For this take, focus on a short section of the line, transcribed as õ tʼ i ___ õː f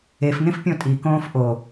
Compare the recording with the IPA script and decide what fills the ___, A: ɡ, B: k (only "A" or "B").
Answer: B